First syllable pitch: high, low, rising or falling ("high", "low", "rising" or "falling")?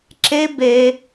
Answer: high